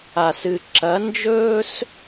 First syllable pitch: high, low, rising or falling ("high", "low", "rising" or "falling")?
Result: low